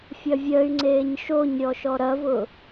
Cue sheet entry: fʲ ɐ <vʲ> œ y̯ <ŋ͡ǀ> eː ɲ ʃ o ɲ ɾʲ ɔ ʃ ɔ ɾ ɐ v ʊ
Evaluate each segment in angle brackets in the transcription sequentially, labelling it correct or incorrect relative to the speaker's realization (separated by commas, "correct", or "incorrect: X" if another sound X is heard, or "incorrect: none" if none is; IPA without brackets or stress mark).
correct, correct